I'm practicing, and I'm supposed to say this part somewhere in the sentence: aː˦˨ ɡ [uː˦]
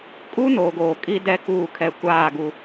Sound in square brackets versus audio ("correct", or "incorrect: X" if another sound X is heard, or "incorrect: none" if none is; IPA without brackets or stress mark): incorrect: u˦